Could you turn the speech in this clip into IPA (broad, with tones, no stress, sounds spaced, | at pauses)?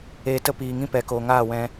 eː˧ t ə˦ p iː˨ ŋ ĩ˦ p ɛ˨ k oː˨ ŋ aː˦˨ w ɛ̃˧